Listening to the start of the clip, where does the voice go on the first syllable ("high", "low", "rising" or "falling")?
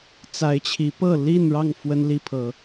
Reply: rising